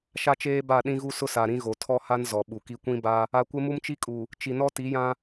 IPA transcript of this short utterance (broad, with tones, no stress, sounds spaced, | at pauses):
ʃ a˦ t͡ʃ eː˦ b a˦˨ ɗ ĩ˦ ɣ u˦ s ʊ˦ s a˨ ɾ ĩ˦ ɣ o˨ tʰ ɔ˦ h a˦ n z ɔ˨ ɓ u˨ k i˦ kʷ ĩ˦ b a˦ | a˨ kʷ ɪ˦ m u˦ m t͡ʃ i˦ kʼ u˨ | t͡ʃ i˨ n ɔ˦ t i˨˦ j ã˦